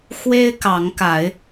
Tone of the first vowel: high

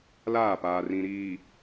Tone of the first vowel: falling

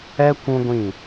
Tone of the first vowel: high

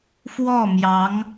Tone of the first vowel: falling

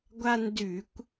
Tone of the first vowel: high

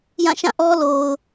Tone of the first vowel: falling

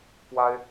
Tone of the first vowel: high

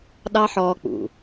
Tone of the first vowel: high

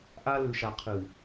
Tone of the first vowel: high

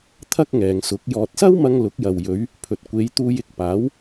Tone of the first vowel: high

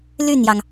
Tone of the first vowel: falling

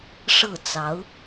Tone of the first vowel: falling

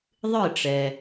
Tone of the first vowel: falling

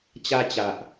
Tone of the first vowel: high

